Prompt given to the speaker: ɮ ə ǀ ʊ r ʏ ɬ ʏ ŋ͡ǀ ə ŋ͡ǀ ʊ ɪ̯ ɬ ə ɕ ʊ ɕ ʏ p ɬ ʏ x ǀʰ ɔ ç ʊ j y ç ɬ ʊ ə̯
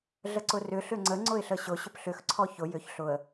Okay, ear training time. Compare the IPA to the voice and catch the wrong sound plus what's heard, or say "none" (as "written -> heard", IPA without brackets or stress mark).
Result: y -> ʏ